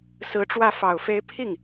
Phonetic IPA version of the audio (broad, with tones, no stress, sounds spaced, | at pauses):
s ɹ̩˧˥ ʈ͡ʂ w ä˥˩ f ɑ˨˩ ʊ̯ f e˧˥ ɪ̯ pʰ i˥˩ ŋ